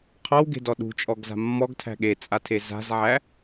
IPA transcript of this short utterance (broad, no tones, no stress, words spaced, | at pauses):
qʰɔwɡe̤dɔ ɗṳt͡ʃʼɔɡza̤ mːɔɡtʰæ̤ ɠet͡sʼatʰe za̤zʕæ